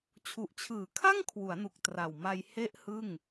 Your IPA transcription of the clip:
t͡ɕʰ u˨˩ ʔ t͡ɕʰ ɯː˩˦ kʰ a˥˩ ŋ kʰ w u˩˦ a̯ n u˨˩ k̚ t r a˨˩ w m a˧ j h e˦˥ ʔ h ɯ˥˩ ŋ

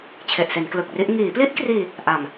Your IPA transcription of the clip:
t͡ɕʰ e˨˩ ʔ s e˩˦ n k l ɯ˨˩ k̚ r i˦˥ ʔ ŋ iː˩˦ p l i˦˥ ʔ k r iː˧ | ʔ a˨˩ m

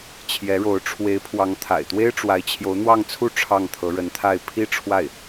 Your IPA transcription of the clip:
t͡ɕʰ j ɛ˧˥ ɻ o˧˥ ʊ̯ ʈ͡ʂʰ w e˧˥ ɪ̯ pʰ w ɑ˧˥ ŋ t̪ʰ a̰˨˩ ɪ̯ t̪ w e˥ ɪ̯ ʈ͡ʂ w a˧˥ ɪ̯ t͡ɕʰ j o˧˥ ʊ̯ n̪ w ɑ˥˧ ŋ t͡sʰ u˥˧ ʈ͡ʂʰ ɑ˥˩ ŋ t̪ʰ ɤ˧˥ ɻ ə˧˥ n t̪ʰ a˥˩ ɪ̯ pʰ i˥ ʈ͡ʂʰ w a˥˩ ɪ̯

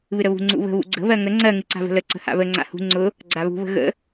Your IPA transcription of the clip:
β ɨ ɾ ə β ṳ ŋ͡ǀ ṵ β ə̤ β ṵ ɡ͡ǀ ə̤ β ɜ ŋ ə ŋ͡ǀ ɜ ŋ ɨ ǀ a̤ v ə̤ l ə ǀ ə̤ h a̰ β ə ŋ͡ǀ a̰ h ṳ ŋ͡ǀ ʊ | ɡ͡ǀ a β ṳ β ə̤ ɣ ə̰

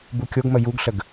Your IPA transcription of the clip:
b u kʲ o ɡ m ə j u ɡ ɬ ə ɡ

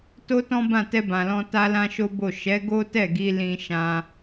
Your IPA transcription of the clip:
t o˦ t ɔ̃˦ b ã˦˨ t ɛ˧ b ã˨ l ɔ̃˧ t a˦ l ã˦ ʃ o˦ b o˦˨ ʃ ɛ˨˦ ɡ o˦ t ɛ˦˨ ɡ i˧ l ĩ˦ ʃ ã˦

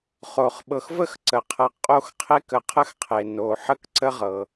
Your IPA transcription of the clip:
χ o˩ χ ɓ ɤ˨ x v ə˥ x ǀ ə˩ qʰ ɤ˨ qʼ o˦ x qʰ e˦ k ə˨ qʰ ə˦ x qʰ e˩ n o˨ ħ ə˥ k ǀ ə˥ ʁ ɤ˩

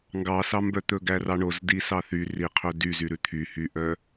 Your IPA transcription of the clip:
ŋ ɡ ɑ s ɑ m b œ t̪ ɵ ɡ æ r ɑ ɳ o z d i s ɑ θ y r i qʰ ɵ d y z y ɾ ʉ t̪ʰ y h y ʔ œ

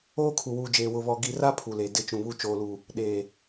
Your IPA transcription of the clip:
oː˦ kʰ u˨ w uː˨ d͡ʒ eː˨ w ʊ˨ β ɔ˨ ɡ i˨ r a˦ pʰ u˨ l e˨ d ɪ˦˨ t͡ʃ ũ˨ β u˦ t͡ʃ oː˨ l u˨ | ɗ eː˨

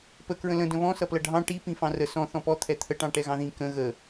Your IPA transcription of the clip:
p ə k ɹ ə̃ l ə̃ d ə̃ β ɔ̃ s ʌ p l ʌ ɖʱ ɑ̃ ʈ i p ĩ f ɑ̃ r ə s ɔ̃ θ ɔ̃ p ɔ t̪ʰ ɛ t̪ʰ ə ʈ ɑ̃ ʈ ɛ ɣ ɑ̃ ð ĩ k ə̃ ɣ ə

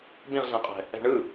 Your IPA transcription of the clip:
b ĩ ʁ ɮ ɛ̃ qʼ ɛ̤ | ɛ̤ ɳ ɯ

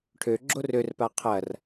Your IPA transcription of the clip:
ʈʰ ø ɡ͡ǁ o r ø r p a qʰ ɐ r

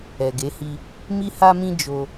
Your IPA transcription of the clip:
ɛ˨ ɡ e˨˦ h i˧ | m i˧ h a˧ m ĩ˧ d͡ʒ o˧

